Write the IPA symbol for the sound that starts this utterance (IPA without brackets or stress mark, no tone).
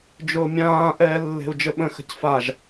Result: d͡ʒ